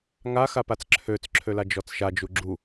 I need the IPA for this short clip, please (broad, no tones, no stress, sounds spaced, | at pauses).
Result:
ŋ a x a p a t͡s ǁʰ ø t͡s ǁʰ ø l a d͡ʒ ɔ t͡s ʃ a d͡ʒ u ɡ͡ǁ u